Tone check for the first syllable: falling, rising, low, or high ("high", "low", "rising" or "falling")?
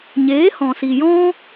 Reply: rising